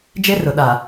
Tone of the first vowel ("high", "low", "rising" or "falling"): high